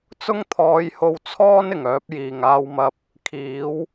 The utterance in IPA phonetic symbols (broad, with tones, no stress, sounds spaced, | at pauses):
t͡s ʊ˥ ŋ t̪ʰ ɔː˨˧ j h o˧ w t͡sʰ ɔː˥ n ɪ˨˩ ŋ œː˨˥ p̚ j iː˨˩ ŋ aː˧ w m ɐ˧ p̚ | kʰ iː˨˥ w